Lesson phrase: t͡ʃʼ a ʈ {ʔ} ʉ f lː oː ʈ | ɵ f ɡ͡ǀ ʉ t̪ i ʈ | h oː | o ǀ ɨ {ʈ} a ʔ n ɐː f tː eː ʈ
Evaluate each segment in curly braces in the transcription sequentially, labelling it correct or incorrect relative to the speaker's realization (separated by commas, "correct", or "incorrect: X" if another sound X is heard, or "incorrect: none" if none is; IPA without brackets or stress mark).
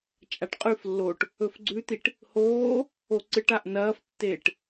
incorrect: qʼ, correct